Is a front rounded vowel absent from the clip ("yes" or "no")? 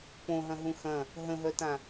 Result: no